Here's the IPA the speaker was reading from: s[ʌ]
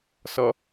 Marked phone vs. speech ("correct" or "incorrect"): correct